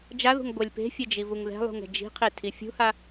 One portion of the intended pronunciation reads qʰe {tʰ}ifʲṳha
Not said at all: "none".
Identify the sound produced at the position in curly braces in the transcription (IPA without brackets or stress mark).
tʰ